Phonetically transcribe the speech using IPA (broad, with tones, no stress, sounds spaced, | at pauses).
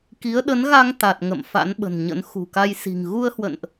k i˨˦ ə̯ ɗ ə˨˦ n ɣ a˧ ŋ t̪ a˨˩ t̚ ŋ ə̰˧˨ m f a̰˧˥ n ɓ ə̤˨˩ n ɲ ə̰˧˥ n x ṳ˨˩ k a˧ j s i̤˨˩ ŋ ɣ u˧ ə̯ h w ə̰˧˨ n ʔ